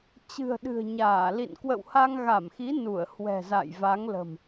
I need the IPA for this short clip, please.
t͡ɕɨ̤˨˩ə̯ɗɨ̤˨˩ə̯ɲaː˧˩lḭ˧˨n kwə̰˧˨wha˧ŋɣa˧˩mxi˨˦ nu˧˩ə̯hwɛ̤˨˩za̰˧˨j va˨˦ŋlə̤˨˩m

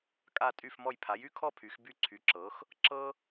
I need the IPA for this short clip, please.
kʼa˥˨tʼy˥˨fmɔ˥˨j pʰa˩˥jy˥kʰɔ˥˨ pʰy˩˥xby˥˨ǀʰy˩˥ǁɤ˩˥x | ǁɤ˥

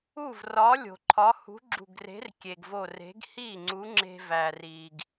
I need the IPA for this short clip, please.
u˥˩vrɒ˨˥lʲo̤˩ ǃʰɒ˨˥hṳ˨˥ɡ͡ǁṳ˧˩ɡre̤˨˥r kʲe˩ɡvo˧˩r e̤˨˥ɡ hi˥˩ ŋ͡ǀu˨˥ŋ͡ǁe̤˧væ˩ ri˩ɡ

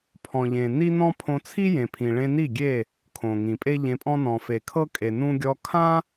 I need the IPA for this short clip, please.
pʰɔ̃˨ʎẽ˨ni˦nɔ̃˦ pʰõ˧t͡sʰi˦jẽ˨pʰĩ˨ ɭẽ˧ni˦˨ɡʲe˦˨ | kʰõ˨ŋĩ˨ pʼe˦ʎẽ˧pʼɔ̃˦ nɔ̃˨fe˨kʰɤ˦ kʼe˨nũ˦ ɡʲɔ˧kʰã˦

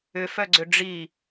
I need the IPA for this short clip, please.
ʏfœɡ͡ǀʏ ɖ͡ʐi

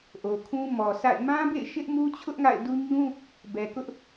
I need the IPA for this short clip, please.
ʔo˨kʰũ˦mɔ˨sʰa̰˦˨ɪ̯ mã˦bḛ˦˨ɪ̯ ʃɪ˦ʔmu˦t͡ɕʰʊ˦ʔ ŋa̰˦˨ɪ̯du˦ ɲũ˦ | bɛ˨kʊ˦ʔ

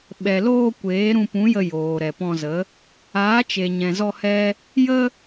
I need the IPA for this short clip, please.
ɓɛ˨loː˧ kʷeː˨˦ɾũ˧pũ˨˦jə˧ joː˨ɾɛ˨pɔ̃˧zə˨˦ | aː˨˦t͡ʃe˨ɲɛ̃˨zɔ˧ hɛ˦ | jə˦

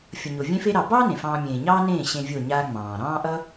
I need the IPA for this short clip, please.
fʲʌ˨ɲo˨ vʲẽ˧fe˧ɾɑ˨bɑː˦ nẽ˨fɑ̃ː˧ mʲẽː˨ɲɑː˦nẽː˦˨ ɕẽ˧vʲo˦˨ ɲaː˧ ŋ͡mɑ̃ː˨ ɾɑ̃ː˦ʔʌ˦

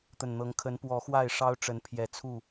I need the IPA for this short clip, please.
t̪ə˨˩nn̪ɤ˨˦ŋ kʰə˨˦npwɔ˨˦ xwa˥˨ɪ̯ʂɑ˦ʊ̯ʈ͡ʂə˨˦n pʰjɛ˨˩t͡sʰu˥˨

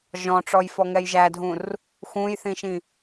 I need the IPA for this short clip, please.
ʒɔ̃ʈ͡ʂɔj fɔŋɛjʒædʱũr | xũjθĩʃĩ

